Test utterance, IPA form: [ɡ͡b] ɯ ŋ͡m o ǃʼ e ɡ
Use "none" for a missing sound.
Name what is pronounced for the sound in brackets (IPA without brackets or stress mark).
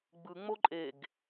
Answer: ɡ͡b